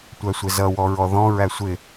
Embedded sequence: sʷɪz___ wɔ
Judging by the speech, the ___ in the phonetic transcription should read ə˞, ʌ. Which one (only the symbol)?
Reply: ʌ